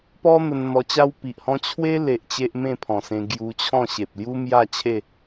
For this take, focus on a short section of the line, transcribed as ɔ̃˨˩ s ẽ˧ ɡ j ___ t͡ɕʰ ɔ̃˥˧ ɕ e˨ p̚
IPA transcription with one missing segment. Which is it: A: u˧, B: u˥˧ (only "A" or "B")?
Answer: A